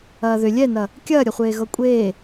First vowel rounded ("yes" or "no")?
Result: no